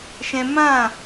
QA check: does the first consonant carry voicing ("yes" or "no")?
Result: no